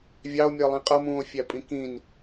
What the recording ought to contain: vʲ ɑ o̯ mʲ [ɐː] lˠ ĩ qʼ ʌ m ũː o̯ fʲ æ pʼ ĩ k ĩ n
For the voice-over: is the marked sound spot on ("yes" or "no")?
no